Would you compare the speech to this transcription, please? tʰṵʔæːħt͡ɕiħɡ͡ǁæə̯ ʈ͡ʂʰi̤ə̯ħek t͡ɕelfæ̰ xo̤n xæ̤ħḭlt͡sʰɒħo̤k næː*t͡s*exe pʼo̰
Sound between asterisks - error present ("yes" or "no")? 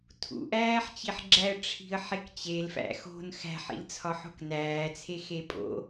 yes